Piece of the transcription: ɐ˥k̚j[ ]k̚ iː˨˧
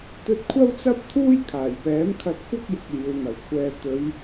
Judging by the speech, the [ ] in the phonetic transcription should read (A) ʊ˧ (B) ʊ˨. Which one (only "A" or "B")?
B